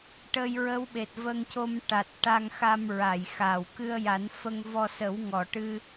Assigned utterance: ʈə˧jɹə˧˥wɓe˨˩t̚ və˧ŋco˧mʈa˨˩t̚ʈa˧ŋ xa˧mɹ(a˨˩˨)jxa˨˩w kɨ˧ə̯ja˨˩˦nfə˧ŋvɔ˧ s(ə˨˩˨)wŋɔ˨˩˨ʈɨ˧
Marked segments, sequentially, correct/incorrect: correct, incorrect

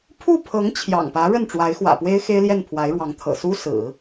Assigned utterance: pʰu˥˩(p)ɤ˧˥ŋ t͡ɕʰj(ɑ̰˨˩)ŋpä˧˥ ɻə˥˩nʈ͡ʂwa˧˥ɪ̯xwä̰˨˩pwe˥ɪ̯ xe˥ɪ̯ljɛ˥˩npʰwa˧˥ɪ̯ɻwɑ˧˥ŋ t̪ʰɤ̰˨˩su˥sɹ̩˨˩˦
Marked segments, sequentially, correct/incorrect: incorrect, correct

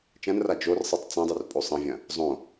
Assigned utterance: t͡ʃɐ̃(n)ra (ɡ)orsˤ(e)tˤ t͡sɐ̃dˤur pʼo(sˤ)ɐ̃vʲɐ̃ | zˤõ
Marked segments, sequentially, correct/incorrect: correct, incorrect, incorrect, correct

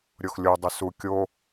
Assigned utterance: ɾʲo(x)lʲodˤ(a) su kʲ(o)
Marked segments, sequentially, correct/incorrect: correct, incorrect, correct

